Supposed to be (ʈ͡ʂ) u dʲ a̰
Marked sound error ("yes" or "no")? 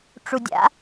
no